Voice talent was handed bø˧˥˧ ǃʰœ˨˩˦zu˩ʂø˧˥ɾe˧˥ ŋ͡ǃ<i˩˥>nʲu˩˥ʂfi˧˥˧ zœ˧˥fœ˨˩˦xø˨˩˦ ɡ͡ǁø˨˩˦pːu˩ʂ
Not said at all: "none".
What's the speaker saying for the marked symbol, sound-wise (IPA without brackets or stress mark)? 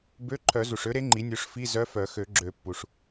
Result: i˩˥